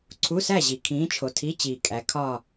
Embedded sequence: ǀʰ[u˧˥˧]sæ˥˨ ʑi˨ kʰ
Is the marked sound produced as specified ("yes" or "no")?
yes